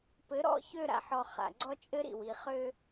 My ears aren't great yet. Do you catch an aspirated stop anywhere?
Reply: no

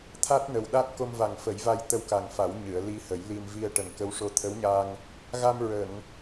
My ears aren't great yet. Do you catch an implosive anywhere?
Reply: yes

